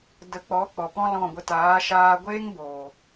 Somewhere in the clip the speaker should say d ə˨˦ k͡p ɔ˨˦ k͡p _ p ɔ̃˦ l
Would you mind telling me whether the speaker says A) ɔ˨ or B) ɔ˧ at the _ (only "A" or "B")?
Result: A